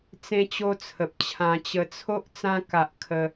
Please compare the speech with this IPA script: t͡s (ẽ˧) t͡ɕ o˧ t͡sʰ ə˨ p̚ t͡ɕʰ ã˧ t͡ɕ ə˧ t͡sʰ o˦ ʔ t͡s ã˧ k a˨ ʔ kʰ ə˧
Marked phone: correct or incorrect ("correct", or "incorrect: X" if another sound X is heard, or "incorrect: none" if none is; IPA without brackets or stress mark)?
correct